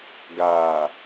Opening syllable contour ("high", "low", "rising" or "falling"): low